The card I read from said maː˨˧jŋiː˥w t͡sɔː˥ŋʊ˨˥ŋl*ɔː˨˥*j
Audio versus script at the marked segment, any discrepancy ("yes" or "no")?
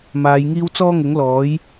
no